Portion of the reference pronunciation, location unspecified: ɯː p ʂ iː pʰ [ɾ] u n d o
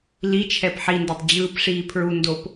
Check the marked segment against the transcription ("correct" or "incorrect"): incorrect